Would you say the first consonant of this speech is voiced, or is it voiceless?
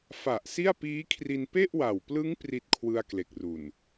voiceless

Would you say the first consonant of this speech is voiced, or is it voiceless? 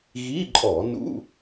voiced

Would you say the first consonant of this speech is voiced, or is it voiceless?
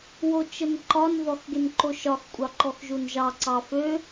voiced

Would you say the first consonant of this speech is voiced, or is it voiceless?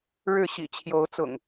voiced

